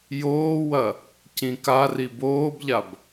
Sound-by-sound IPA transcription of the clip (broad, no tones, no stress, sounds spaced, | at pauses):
j oː w ɐ | c ĩ k a r i b oː b ʎ a b